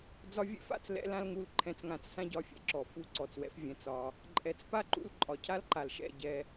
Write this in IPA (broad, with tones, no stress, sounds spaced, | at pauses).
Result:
d͡z ɒ˧ vʲ ɛ̰˦ f a̰˦˨ t͡s l ɛ̰˦ l ã˦ l ŋ u˧ l ǃʰ ɛ̃˧ t͡s ŋ ã˧ t͡s s ã˦ ɟ ɒ˧ fʲ ɛ̰˧ ǁ ɔ˨ f u˦˨ ǀ ɔ˨ t͡s w ɛ̰˨˦ f vʲ ɛ̃˨ t͡s ɒ˧ | ǃʼ ɛ˨ t͡s p a˦ ǃ ṵ˧ l ǃʼ ɒ˨ cʰ a˦ l ǃ a˨ l ʃ ɛ̰˦˨ ɟ ɛ˧